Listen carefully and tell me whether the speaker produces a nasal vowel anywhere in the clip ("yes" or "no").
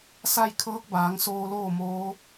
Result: no